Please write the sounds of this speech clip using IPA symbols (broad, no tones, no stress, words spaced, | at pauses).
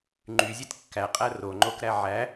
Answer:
ŋ͡ǃyzʲet kːæqʼæ roŋ͡ǃokɾæ ʕæ